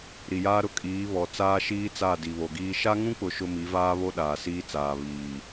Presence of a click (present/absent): absent